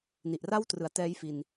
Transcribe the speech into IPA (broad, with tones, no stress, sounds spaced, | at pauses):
n i˨˩ ʔ r a˥˩ w t r ɯ˩˦ a̯ t ɛː˦˥ j f i˧ n